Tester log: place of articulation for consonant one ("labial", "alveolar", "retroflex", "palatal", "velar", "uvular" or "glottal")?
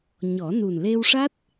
palatal